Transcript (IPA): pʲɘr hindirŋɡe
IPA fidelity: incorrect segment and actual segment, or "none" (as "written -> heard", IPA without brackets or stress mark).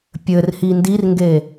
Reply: none